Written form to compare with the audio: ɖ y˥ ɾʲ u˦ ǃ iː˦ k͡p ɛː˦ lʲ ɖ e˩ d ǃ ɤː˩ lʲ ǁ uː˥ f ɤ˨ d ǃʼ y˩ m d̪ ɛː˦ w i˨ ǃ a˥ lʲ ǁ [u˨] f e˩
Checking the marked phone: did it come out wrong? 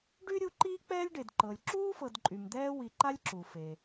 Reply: yes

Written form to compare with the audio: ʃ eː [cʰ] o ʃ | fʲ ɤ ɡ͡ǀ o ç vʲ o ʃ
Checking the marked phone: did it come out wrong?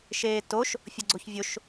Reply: yes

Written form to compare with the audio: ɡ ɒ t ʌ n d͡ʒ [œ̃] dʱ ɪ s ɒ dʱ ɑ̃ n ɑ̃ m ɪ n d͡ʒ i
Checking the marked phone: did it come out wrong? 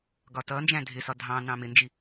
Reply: yes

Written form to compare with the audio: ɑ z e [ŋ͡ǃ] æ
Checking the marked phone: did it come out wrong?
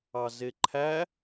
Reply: yes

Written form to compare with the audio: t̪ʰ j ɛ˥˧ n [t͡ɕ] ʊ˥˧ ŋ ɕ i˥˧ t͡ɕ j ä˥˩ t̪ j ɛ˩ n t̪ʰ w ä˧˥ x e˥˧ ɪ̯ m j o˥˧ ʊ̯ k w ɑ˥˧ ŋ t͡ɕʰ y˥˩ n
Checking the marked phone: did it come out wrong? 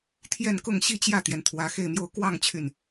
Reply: yes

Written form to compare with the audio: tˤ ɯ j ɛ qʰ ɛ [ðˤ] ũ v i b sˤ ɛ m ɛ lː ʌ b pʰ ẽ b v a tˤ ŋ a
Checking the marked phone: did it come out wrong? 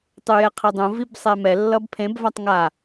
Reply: yes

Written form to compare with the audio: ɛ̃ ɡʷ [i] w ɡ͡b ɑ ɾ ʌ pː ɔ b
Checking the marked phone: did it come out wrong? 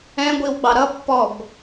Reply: no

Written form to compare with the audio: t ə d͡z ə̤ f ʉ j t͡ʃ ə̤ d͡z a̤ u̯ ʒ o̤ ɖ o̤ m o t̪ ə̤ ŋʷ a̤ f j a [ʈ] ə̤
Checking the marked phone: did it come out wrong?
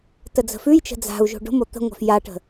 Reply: no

